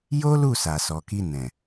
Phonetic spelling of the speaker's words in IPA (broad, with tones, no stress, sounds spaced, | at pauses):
j o˦ l u˦˨ s a˨ s ɔ˨ k i˧ n ɛ̃˨